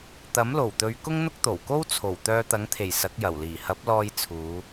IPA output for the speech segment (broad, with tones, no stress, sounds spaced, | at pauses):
t̪ ɐ˨˥ m l o˨˩ w t̪ ɵ˨˧ ɥ k ʊ˥ ŋ n̪ ʊ˥ k̚ t̪ o˨˩ w k o˥ w t͡sʰ o˨˩ w t̪ œː˧ t̪ ɐ˨˥ ŋ t̪ʰ e˨˩ j s ɐ˨˥ k̚ j ɐ˨˩ w l iː˨˩ h ɐ˨˥ p̚ l ɔː˧ j t͡sʰ uː˨˧